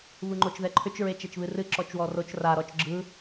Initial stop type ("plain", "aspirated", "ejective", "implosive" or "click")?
click